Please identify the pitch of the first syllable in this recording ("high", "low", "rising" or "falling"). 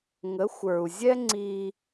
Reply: rising